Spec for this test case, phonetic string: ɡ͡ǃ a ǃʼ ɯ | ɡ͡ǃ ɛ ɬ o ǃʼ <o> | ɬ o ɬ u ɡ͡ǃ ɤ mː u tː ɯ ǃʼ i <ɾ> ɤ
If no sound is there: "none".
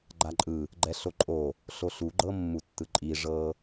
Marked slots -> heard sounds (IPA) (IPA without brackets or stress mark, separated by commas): o, ʐ